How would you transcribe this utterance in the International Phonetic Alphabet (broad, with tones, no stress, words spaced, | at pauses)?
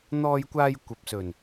n̪ɔː˧jkʷaː˧j kʷɐ˨p̚sɵ˨˩n